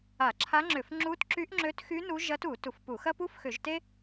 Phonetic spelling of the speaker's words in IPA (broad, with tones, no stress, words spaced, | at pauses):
a˧˩˧ǁʰa˧˥ŋ͡ǁʏ˧˩˧f ŋ͡ǁu˧˥tǁy˧˥ʔŋ͡ǁø˧˥txy˧˥ nu˧˥ʒɐ˧˥tu˧˩˧ tu˧˩˧fpu˧˩˧ xɐ˥pu˥fxʏ˧˩˧ʒte˥